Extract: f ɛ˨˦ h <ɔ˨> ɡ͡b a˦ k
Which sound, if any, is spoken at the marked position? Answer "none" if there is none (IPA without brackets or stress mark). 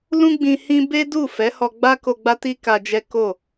ɔ˧